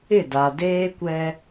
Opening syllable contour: falling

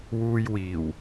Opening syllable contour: low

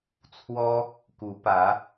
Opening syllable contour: high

